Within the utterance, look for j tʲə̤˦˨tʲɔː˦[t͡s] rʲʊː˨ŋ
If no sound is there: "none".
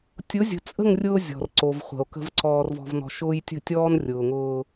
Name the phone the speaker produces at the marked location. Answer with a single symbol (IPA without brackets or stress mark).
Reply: n